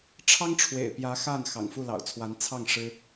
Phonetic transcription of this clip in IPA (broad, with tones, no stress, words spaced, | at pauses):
ʈ͡ʂʰɑ˥ŋʈ͡ʂʰwḛ˨˩ɪ̯pjä˧˥ xa˥˩n xɑ̰˨˩ŋfu˥˩lɑ̰˨˩ʊ̯t͡sʰwa˧˥n t͡sʰɑ˥˩ŋ ʂɻ̩˥